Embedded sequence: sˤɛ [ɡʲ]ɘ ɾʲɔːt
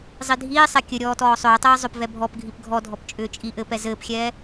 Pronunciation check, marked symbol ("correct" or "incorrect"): incorrect